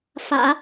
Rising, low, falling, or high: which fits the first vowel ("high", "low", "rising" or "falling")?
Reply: low